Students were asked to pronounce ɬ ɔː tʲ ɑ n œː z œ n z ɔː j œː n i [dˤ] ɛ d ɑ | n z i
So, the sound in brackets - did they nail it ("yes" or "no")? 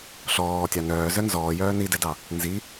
no